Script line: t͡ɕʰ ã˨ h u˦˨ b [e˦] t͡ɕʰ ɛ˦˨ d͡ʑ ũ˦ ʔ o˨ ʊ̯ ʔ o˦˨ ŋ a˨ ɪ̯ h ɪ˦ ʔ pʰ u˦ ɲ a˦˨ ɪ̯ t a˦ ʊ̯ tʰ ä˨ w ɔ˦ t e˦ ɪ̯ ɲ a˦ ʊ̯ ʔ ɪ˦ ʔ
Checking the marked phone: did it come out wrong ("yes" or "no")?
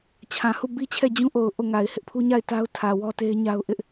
yes